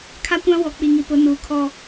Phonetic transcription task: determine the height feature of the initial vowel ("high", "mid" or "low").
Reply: low